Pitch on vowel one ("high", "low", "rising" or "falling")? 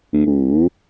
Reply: rising